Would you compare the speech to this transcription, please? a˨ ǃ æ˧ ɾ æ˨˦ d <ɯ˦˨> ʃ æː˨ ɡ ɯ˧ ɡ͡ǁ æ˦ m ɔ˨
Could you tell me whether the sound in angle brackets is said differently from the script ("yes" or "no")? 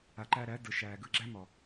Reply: yes